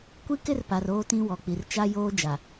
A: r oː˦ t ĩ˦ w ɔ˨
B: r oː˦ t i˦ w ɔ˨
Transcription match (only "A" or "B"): A